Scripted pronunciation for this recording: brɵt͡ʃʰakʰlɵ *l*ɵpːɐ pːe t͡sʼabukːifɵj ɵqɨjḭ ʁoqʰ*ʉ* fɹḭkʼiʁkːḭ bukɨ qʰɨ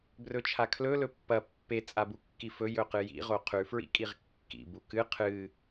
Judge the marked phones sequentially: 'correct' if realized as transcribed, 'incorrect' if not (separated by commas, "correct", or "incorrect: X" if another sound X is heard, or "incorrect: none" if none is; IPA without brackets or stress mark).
correct, correct